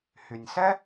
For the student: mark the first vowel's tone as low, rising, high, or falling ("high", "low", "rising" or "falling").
low